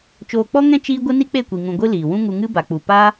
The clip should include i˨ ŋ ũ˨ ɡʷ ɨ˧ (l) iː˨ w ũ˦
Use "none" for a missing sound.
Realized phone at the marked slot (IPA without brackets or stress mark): l